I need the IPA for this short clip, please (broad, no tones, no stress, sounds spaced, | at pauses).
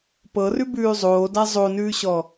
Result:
p ɤ r ʉ b ʉː zˤ oː d a zˤ o n ʉː ɕ ɔ